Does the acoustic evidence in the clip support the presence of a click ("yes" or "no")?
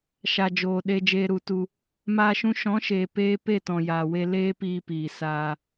no